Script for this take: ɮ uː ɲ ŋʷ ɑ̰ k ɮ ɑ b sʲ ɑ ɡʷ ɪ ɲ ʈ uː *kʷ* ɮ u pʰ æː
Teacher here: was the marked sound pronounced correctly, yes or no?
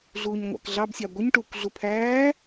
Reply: yes